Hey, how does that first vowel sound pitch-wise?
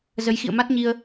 rising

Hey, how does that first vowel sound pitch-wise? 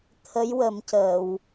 rising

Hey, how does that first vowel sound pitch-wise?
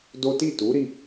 high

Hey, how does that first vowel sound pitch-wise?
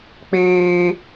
high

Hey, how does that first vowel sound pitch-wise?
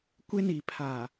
high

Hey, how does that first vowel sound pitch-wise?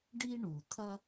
high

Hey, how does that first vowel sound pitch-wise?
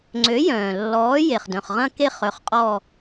rising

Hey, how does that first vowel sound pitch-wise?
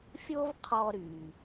high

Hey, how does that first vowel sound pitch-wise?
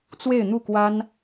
falling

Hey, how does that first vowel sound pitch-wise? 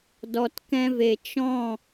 low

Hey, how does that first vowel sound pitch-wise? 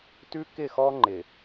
high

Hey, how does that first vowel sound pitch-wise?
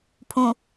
low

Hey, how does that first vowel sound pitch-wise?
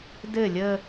falling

